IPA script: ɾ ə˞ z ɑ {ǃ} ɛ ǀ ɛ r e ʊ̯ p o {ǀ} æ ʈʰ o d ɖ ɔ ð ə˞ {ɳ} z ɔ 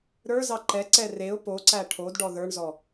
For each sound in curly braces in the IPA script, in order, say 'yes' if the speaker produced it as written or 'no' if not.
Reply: yes, yes, yes

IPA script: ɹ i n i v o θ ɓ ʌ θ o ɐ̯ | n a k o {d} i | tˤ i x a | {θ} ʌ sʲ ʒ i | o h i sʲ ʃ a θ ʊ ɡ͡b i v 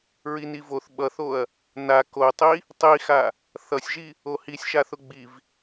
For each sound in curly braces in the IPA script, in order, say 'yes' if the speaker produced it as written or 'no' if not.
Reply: no, yes

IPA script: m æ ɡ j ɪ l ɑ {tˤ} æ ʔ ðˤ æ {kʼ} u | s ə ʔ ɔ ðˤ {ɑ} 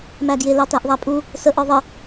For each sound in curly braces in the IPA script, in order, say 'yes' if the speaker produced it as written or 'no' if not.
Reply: no, no, no

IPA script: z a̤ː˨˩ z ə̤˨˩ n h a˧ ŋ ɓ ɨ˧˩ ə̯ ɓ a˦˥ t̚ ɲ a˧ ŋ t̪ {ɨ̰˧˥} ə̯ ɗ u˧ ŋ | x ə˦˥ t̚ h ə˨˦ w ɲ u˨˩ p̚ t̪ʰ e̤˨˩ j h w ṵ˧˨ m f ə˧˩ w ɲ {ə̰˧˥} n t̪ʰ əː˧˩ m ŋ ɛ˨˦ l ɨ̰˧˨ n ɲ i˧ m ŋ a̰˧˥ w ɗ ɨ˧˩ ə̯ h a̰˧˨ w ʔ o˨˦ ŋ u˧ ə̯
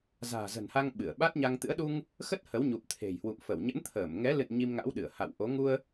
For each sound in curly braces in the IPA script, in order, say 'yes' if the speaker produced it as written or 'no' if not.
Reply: yes, yes

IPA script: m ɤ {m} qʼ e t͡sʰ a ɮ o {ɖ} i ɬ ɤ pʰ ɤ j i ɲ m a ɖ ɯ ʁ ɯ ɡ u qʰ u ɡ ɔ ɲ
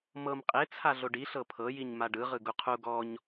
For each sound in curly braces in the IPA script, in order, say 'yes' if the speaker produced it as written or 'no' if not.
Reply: yes, yes

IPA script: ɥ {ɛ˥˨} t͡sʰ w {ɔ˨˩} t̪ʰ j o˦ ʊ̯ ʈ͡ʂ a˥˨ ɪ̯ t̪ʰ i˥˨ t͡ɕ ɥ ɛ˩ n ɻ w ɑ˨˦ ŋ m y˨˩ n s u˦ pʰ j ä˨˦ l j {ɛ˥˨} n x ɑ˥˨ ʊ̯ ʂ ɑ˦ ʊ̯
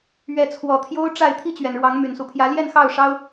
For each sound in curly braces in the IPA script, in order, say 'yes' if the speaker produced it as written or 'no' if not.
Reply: no, yes, yes

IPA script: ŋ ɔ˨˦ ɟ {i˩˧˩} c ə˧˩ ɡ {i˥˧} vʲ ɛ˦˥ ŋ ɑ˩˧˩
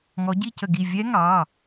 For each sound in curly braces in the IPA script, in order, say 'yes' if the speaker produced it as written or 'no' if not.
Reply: no, no

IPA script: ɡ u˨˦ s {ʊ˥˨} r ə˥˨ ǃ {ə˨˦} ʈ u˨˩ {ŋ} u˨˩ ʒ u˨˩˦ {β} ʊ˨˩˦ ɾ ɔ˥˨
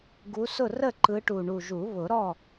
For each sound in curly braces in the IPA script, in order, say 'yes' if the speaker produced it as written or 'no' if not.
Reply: yes, no, no, yes

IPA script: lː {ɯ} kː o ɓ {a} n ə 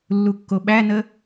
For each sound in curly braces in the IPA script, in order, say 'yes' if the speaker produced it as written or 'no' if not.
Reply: no, no

